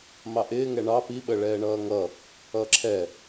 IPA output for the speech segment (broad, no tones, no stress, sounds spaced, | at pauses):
m ɑ ʔ ɪː ŋ ɛ ɳ ɑ p i ɓ ə ɭ ɛː ɳ ʌː ŋ ʌ | ʌː ǁʰ ɛ